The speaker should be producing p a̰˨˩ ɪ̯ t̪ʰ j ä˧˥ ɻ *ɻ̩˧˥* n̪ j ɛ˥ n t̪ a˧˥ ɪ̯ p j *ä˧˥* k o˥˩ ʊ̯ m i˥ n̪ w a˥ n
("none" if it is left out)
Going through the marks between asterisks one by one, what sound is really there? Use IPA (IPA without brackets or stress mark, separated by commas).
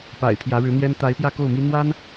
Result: ɻ̩˧˥, ä˥˧